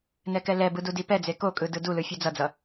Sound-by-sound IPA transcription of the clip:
n ɛ k ɛ l ɛ b ɯ d u d i p ɛ d͡z e k o kʼ ɯ d ɯ d u l ɯ fʲ ɯ d͡z ʌ d͡z ʌ

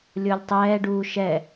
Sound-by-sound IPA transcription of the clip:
lʲ o lʲ tˤ ɛː ɖ uː ʃ ɛ

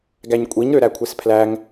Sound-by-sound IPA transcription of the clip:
ɡ æ ɲ kʷʼ i ɲ ɾ ø ɾ æ kʷʰ e s pʰ l æ ŋ

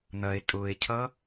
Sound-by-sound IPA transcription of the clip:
n̪ ɐ e̯ tʼ ʊ e̯ cʰ ʌ

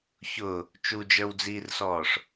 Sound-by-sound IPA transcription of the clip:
ç ʊː | t͡ʃ u d͡ʒ ə˞ w d͡z iː r s ɔː ʂ

